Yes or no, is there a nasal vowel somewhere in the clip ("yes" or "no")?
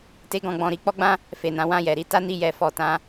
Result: yes